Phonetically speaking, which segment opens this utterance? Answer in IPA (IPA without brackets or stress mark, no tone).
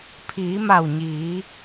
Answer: pʰ